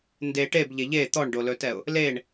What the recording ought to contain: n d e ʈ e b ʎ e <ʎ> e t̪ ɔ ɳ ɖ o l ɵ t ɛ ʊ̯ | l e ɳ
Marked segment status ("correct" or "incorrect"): correct